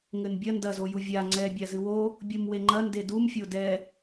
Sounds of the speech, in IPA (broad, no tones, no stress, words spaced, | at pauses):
ŋɘnbʲɐ ndɐzoju vʲa ŋ͡ǀɛbʲa zɨwo | bʲumweŋ͡ǃɐ ndedumfʲo dɛ